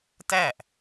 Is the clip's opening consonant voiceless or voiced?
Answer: voiceless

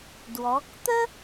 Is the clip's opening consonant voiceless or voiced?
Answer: voiced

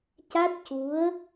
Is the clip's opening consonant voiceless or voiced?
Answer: voiceless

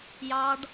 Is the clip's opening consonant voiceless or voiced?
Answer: voiced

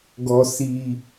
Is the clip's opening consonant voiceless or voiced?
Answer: voiced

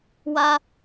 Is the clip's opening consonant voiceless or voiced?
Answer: voiced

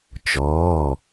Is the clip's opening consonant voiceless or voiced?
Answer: voiceless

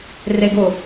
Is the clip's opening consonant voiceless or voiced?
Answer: voiced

